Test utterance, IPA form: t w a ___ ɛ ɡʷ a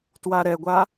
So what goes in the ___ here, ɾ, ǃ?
ɾ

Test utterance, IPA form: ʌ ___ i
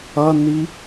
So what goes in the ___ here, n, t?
n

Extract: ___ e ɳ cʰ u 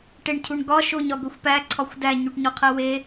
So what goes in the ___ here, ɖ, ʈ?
ʈ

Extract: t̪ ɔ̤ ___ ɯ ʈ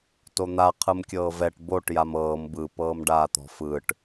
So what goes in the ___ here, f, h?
f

